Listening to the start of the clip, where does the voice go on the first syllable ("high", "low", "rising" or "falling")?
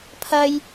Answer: high